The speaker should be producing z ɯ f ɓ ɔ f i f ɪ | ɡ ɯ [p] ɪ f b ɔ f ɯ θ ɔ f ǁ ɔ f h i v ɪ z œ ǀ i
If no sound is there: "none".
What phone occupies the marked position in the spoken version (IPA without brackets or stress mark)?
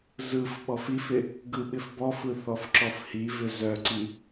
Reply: ɓ